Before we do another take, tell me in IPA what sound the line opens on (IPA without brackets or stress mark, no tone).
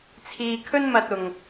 t͡sʰ